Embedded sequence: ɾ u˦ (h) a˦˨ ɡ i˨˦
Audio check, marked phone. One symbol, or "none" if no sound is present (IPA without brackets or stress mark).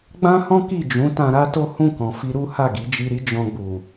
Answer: h